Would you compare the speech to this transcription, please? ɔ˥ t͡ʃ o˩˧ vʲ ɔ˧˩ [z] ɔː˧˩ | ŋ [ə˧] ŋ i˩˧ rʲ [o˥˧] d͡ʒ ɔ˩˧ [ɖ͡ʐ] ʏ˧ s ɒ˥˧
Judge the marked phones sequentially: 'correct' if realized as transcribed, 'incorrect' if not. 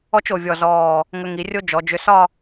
correct, correct, incorrect, incorrect

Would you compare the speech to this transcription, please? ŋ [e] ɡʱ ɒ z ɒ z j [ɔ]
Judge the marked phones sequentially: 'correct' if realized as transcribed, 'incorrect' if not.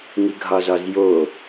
incorrect, incorrect

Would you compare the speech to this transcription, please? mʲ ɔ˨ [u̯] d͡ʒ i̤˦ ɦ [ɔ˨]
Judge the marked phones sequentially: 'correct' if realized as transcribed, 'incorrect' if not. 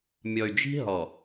incorrect, correct

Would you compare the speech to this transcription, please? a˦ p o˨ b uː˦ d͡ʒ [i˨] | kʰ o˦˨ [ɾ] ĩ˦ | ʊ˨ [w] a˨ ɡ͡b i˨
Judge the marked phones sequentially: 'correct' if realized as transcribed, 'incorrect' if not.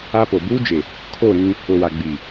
incorrect, correct, correct

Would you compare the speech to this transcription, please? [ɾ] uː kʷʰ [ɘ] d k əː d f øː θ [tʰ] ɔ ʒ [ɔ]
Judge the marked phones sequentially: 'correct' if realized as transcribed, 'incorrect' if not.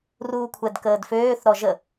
incorrect, incorrect, incorrect, incorrect

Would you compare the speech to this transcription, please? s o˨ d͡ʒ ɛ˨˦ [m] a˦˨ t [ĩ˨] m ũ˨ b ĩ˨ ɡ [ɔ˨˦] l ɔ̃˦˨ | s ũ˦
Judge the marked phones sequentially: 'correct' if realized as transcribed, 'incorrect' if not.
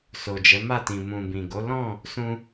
correct, correct, incorrect

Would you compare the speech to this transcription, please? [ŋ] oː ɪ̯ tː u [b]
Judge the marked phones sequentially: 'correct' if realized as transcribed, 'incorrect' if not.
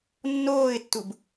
incorrect, correct

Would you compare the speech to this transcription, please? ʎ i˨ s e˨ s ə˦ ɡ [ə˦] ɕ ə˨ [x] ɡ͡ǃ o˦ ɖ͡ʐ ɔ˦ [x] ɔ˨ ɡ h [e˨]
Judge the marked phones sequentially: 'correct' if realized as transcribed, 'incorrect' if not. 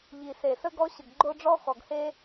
incorrect, incorrect, correct, incorrect

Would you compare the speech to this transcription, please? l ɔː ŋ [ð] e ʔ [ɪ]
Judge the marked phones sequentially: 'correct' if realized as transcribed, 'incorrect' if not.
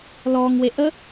incorrect, incorrect

